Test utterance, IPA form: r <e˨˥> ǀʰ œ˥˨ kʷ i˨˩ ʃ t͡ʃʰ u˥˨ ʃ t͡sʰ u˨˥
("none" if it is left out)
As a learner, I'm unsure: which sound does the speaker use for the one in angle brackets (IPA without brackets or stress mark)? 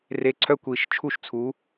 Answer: e˨˥